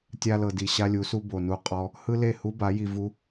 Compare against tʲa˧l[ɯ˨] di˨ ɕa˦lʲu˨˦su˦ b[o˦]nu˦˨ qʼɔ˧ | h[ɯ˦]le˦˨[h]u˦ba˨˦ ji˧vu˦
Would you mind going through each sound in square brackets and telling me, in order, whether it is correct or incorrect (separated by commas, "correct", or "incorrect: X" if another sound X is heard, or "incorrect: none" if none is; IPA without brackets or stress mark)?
incorrect: ɤ˨, incorrect: o˨, correct, correct